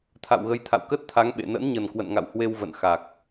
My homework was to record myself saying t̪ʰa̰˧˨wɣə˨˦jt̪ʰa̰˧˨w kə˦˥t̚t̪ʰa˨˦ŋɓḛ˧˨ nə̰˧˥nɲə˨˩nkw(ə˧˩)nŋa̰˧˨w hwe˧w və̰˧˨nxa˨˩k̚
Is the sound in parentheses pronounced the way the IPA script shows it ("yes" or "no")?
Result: no